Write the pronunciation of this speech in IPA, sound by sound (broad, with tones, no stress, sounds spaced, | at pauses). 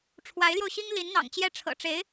ʈ͡ʂʰ w a˧˥ ɪ̯ l j o˧ ʊ̯ ɕ i˥ ŋ l i˧˥ n n̪ ɑ̰˨˩ ŋ t͡ɕ j ɛ˥˩ ʈ͡ʂʰ ɤ̰˨˩ ʈ͡ʂ e˧˥ ɪ̯